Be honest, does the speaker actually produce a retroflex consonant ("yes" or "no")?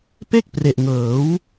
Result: no